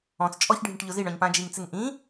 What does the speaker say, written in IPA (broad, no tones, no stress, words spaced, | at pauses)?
ɔ̃t͡s t͡ʃʼɔçɖʱĩʈ ʎʊziɳɔ̃ɲ pãd͡ʒiŋt͡sɪŋ ʔĩ